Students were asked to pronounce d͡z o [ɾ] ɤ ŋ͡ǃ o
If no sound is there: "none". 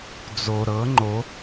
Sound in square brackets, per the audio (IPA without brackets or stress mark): ɾ